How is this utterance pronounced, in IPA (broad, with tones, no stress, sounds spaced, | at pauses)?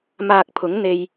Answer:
m aː˨ k̚ pʰ ʊ˨˥ ŋ n̪ e˧ j